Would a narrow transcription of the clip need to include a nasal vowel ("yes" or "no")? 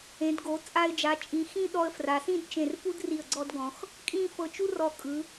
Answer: yes